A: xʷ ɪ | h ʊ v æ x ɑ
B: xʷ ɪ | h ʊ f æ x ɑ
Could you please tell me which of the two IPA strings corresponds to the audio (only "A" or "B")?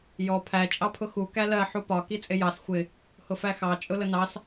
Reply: B